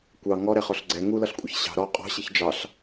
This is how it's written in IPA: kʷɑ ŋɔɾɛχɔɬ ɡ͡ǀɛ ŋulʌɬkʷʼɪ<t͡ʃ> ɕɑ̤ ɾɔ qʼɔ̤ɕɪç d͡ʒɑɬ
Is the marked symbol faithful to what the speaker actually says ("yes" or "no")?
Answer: no